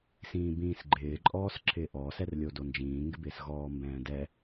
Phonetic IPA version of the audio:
s ĩː b ĩː s ɡ͡ǃ ɪː ǃʼ ɔː s ǁʰ ɪː ʔ ɔ s ɛ r lʲ o d o n d͡ʒ ĩː ŋ ɡ ɪ b ɪː s ɣ ɔː m b ɛ̃ː d ɛ

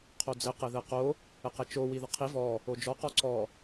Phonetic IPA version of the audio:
qʰ o d͡z ɘ q ɘ ð ɘ q o | ɘ q ɛ t͡ʃ o w i ð ə qʰ i v ɔ | o d͡ʒ ɔ q ɔ ǀ ɔ

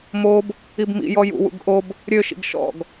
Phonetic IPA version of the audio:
m o b | i b m ḭ j ɔ j ṵ w ṵ ɡ ʔ o b | ɾʲ ø ʃ ḭ ɡ ʃ ɔ̰ ɡ

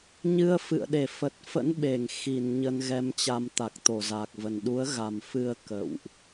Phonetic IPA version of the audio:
ɲ ɨ˧ ə̯ f ɨ̰˧˨ ə̯ ɗ e˧˩ f ə˨˩ t̚ f ə̰˧˥ n ɓ e˧˩ ŋ x i˧˩ n ɲ ə˧ n ɣ ɛ˧ m t͡ɕ a˧ m t̪ a˨˩ k̚ t̪ o˧˩ z a˨˩ k̚ v ə˨˩ n ɗ u˨˦ ə̯ ɣ a˨˩ m f ɨ˧ ə̯ k ə̰˧˨ w ʔ

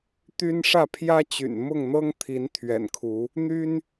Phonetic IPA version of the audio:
t̪ y˦ n ʂ ä˥˨ pʰ j ä˦ t͡ɕ y̰˨˩ n m ʊ˥˨ ŋ n̪ ɤ˦ ŋ t̪ʰ i˨˦ n t̪ʰ ɥ ɛ̰˨˩ n kʰ u˨˦ | n̪ y˦ n

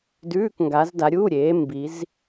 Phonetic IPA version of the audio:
d ʉː˧˥˧ k ŋ ɡ a˨˦ z d a˨˦ ɾʲ uː˧˥˧ ɾʲ eː˨˦ m b i˨˦ z

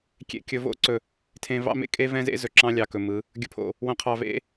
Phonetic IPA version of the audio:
kʲ ḛ˨ kʲ ɵ˨ v o̰˦ ǀ ɵ˨ | tʰ ẽ˨ v ɑ̰˦ m ḛ˦ kʼ e˦ v ɛ̃˦ z ḛ˦ z ɵ˨ ǁ ɑ̃˦ lʲ ɑ˨ k ɵ˨ m ɯ˨˦ | ɡʲ ɵ˨ pʰ o̰˨ | w õ˨ qʰ ɑ˨ v ḛ˦

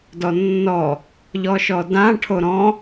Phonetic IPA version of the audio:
d ɔ nː ɔ | ʎ ɔ ʃ ɔ d ã ʈʰ o ɾ ɔ̃

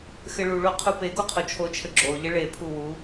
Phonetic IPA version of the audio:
x ɘ ɭ u ɭ o qʰ u p e ɡ o qʰ o t͡ʃʰ o t͡ʃʰ ɘ ɡ͡ǁ o ʎ ɘ ɭ e pʰ u w u

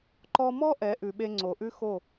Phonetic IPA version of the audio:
ǃ ɔ˧ m ɔ˦ ʔ ɛ˨˦ ʔ ʉ˨ ɓ e˧ ŋ͡ǀ o˨ ʔ ʉ˦ x o˦˨

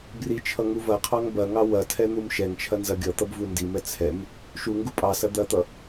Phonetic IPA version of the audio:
b r i t͡ʃʰ ʌ ŋ u v ɐ qʰ ɑ ŋ b ɐ ŋ ɑ w ɐ tʰ ɛ n̪ u m ʃ ɛ ŋ t͡ʃʰ ɐ n z ɐ ɡʲ ʌ t̪ ʌ b v u n d i m ɛ t͡sʰ ɛ m | ʃ u ŋ ɡ u pʼ ɑ s ɐ d̪ ɐ t̪ ʌ

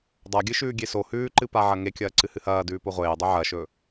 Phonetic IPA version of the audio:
dˤ a ɡʲ ɨ ʃ ʉː ɡʲ e s o h ʉː ǃ ɨ p a ʕ ɐ ŋ e kʲ ɐː ǀ ɨ h ɨ h ɐː d ʉː p o ʁʷ eː dˤ ɨ ʕ ɐ ʃ ɵ

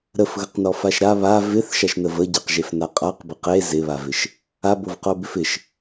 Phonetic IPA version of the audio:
ɾ ə f ɣ ə q n ɔ f a ʃ ɾ a β a v ɪ θ ʃ a ʃ n ə v ə ɟ ɪ q ʒ e f n a qʼ a q b ɪ q e z ɪ β a v ɪ ʃ | a b o v q o b ɪ f ɪ ʃ

